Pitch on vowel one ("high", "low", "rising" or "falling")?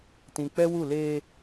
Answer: low